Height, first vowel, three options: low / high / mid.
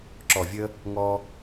mid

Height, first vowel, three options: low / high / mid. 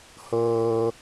mid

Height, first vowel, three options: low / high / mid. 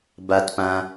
low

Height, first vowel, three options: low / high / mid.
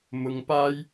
high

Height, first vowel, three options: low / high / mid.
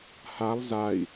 low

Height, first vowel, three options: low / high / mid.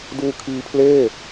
high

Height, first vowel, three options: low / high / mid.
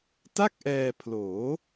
low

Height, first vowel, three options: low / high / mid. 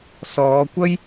mid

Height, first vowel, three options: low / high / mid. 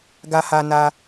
low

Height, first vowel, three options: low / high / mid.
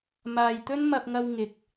low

